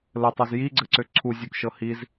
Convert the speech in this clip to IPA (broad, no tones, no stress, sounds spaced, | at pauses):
l ə tˤ o z j i ɡ͡ǀ ɘ ǀ ø ǀʰ u zʲ u k ʃ ɤ h i z